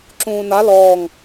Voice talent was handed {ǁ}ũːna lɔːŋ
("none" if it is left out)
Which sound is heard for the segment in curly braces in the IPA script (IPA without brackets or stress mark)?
ǁ